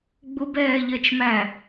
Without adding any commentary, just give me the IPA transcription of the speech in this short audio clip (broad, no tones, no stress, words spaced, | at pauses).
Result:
ɡ͡bʊbɛːʎɜt͡ʃmæ